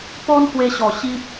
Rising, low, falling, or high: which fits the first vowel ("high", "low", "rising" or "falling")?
high